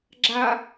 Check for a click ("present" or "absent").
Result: present